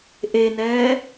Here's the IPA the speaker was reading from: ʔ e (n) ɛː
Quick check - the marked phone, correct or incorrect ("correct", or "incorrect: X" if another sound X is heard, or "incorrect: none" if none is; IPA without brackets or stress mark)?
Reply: correct